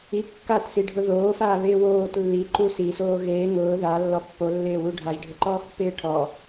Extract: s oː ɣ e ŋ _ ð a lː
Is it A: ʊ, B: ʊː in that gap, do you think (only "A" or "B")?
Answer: B